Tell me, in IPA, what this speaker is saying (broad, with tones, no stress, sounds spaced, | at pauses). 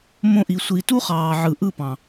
m õ˧ ʔ i˨ sʷ i˨ t u˦ χ ɑː˨ ʕ ɯ˨ ʔ ɯ˦˨ p ɑ̃˨